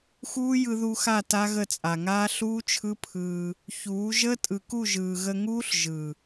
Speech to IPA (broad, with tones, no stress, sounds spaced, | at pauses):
x uː˦ j ɯ˧ ð u˧ x a˦˨ t a˦ ɣ ə˦˨ t͡sʼ a˨ ŋ aː˦ ɬ uː˦ t͡ʃʰ ɯ˦ pʰ ɯː˧ | ç uː˨˦ ʒ əː˦ tʼ ɯ˨ k u˦˨ ʒ ɯː˨ ɣ ə˧ ŋ uː˦ ɬ ʒ ɯ˨